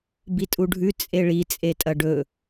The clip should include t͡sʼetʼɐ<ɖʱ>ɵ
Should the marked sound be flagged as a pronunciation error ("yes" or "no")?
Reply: yes